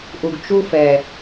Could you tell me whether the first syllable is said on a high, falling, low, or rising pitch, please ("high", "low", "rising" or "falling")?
low